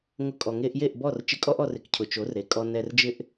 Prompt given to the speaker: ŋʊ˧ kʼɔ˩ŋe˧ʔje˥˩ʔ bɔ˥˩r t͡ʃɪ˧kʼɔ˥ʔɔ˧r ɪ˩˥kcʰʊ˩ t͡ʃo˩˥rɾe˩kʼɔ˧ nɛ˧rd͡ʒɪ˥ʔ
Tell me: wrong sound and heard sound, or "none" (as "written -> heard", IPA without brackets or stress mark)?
none